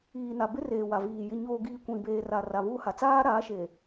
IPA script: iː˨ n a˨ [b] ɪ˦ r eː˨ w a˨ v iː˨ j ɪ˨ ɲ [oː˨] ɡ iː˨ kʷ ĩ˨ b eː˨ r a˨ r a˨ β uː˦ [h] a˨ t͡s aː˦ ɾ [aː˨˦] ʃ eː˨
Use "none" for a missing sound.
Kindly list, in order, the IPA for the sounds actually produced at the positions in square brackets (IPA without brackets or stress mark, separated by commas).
b, oː˨, h, aː˨˦